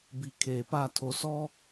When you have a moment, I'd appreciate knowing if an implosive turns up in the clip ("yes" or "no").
no